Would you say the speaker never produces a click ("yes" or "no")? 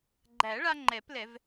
no